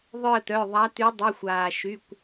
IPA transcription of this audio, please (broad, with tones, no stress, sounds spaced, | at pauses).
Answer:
ðˤ œ˦˨ ə̯ t̪ œ˩˧˩ ðˤ a˨˦ t̪ y˨˦ dˤ i˩˧˩ xʷ aː˩ ʃ y˩˧˩ kʷ